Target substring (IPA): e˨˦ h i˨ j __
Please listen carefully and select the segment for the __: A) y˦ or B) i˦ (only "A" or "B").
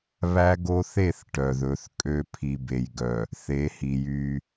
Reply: A